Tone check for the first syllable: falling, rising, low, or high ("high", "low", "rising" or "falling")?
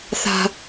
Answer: high